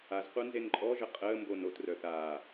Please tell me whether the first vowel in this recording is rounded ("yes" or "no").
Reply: no